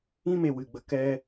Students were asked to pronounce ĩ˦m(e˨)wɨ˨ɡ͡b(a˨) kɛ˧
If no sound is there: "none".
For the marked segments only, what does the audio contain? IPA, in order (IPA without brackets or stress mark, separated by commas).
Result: e˨, ə˨